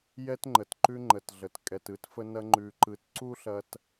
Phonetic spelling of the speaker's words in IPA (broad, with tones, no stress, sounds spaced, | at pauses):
j ɛ˦ t ŋ͡ǃ ə˨ t ǃ ʉ˦ ŋ͡ǃ ə˨ t ɮ ə˨ t kʼ ɛ˨ t ɯ˨˦ t f ə˦ n ɐ˦ ŋ͡ǃ ʉ˨ ǃ ɯ˨ t ǀ u˦ ɬ ɐ˦ t